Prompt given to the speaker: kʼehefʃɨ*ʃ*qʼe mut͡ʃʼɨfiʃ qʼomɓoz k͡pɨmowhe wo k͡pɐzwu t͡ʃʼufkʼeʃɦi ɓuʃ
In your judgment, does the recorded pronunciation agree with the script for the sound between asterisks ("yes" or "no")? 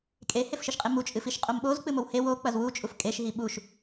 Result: yes